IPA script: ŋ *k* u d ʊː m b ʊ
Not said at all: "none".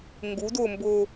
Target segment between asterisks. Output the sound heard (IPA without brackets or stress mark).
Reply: ɡ